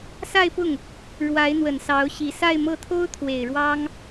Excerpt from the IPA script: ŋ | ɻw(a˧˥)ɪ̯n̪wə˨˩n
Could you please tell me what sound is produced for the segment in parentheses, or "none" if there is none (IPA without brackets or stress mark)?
a˧˥